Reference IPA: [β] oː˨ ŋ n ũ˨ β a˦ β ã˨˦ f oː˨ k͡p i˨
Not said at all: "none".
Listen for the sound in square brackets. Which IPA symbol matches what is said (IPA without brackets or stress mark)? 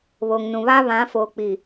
β